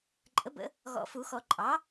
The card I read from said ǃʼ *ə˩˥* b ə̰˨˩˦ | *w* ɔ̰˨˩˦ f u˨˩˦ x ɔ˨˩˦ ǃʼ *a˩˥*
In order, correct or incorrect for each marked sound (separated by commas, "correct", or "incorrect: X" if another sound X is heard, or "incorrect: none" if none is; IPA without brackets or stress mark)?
correct, incorrect: ɣ, incorrect: ɑ˩˥